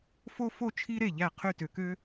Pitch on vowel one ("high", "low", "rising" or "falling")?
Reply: high